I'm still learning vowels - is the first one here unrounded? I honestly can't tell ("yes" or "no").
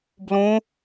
no